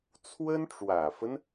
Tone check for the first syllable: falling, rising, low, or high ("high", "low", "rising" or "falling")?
high